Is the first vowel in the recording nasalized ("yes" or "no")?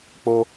no